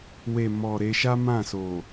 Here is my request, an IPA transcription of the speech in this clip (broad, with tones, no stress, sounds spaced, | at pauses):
w e˨ m ɔ˨ ɾ e˧ ʃ a˦ m ã˦˨ s o˨